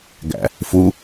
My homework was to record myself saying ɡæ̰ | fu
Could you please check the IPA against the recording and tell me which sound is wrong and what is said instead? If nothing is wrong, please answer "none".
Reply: none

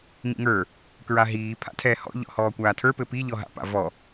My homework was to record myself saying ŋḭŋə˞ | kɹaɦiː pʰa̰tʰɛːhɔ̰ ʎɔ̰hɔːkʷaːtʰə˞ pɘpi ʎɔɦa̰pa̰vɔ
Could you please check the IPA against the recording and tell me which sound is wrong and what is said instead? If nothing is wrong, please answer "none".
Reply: none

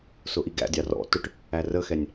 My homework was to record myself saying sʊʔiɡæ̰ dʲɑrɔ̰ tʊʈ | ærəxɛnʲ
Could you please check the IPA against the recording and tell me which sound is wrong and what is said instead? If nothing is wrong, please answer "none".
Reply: none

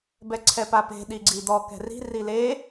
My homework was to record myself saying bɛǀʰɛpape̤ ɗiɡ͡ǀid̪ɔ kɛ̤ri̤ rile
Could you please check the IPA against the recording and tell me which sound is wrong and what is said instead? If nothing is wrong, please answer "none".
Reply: none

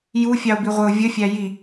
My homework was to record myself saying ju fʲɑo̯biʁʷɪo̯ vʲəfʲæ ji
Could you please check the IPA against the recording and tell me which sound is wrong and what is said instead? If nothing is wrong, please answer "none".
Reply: none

